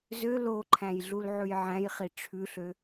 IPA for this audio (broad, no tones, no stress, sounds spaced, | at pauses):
z ø l o ǃʰ æ̃ j ɮ u l ʕ ʉ j ʕ æ̃ j χ i ʈ͡ʂʰ ʉ ɬ ø